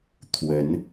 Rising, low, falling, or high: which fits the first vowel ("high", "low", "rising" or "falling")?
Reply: rising